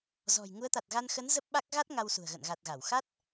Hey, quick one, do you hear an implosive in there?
yes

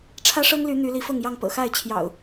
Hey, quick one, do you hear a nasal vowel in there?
no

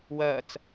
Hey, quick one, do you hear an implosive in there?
no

